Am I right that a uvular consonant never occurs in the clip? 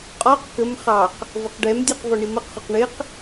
no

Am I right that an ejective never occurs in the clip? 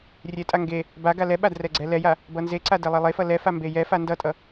no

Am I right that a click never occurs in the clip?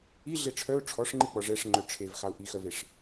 no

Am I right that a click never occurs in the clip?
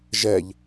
yes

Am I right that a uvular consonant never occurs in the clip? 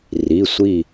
yes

